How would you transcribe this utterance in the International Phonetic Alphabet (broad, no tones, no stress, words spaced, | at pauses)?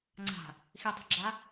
ŋ͡ǀa̤ | xitˤe̤ɡ͡ǁa